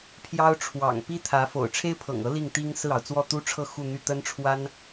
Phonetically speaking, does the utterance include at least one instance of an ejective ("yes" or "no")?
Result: no